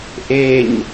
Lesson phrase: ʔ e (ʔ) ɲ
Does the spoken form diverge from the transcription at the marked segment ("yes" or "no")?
yes